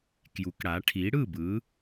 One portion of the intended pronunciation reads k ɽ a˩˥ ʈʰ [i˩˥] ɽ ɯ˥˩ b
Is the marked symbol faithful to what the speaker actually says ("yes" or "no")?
yes